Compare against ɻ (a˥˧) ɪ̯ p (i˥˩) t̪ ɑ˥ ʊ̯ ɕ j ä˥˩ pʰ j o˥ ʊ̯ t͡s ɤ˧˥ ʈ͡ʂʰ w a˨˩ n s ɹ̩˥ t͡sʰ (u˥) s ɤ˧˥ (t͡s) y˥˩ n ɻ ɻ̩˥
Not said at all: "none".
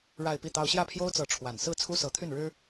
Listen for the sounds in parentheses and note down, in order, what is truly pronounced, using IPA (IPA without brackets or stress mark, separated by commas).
a˥˧, i˥˩, u˥, t̪ʰ